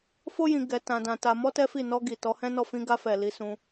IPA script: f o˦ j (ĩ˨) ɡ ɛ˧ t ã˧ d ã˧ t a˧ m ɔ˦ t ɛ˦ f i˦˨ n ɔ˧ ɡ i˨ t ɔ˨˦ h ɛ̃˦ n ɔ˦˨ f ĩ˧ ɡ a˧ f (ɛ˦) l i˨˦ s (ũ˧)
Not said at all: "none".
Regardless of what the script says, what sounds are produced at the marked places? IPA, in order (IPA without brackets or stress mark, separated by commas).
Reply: ĩ˧, ɛ˨, ũ˧